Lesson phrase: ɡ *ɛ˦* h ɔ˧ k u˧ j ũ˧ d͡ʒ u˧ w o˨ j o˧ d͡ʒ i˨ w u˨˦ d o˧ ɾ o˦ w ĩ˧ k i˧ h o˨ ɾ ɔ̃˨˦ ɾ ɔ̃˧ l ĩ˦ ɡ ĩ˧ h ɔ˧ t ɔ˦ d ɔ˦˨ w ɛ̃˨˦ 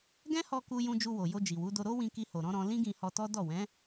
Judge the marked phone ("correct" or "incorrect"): incorrect